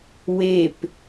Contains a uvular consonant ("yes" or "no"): no